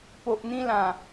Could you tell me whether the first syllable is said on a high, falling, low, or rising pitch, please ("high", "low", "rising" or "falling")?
low